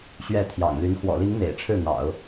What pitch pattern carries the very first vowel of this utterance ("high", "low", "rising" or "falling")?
falling